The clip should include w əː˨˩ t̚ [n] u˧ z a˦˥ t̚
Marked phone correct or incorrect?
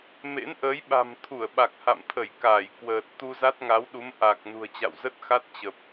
incorrect